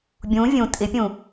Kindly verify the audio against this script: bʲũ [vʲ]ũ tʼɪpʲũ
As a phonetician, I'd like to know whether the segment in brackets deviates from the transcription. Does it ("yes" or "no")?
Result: no